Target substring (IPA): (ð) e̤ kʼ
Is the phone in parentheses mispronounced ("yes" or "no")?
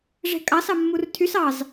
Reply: yes